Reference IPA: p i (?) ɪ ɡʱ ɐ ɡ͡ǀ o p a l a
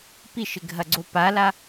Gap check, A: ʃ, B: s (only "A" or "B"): A